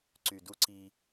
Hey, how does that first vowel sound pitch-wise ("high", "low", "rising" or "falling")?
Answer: low